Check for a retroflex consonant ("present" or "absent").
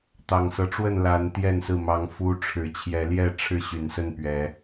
present